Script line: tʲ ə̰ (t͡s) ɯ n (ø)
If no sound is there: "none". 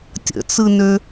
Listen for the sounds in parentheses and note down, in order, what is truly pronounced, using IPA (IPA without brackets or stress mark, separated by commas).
t͡s, ø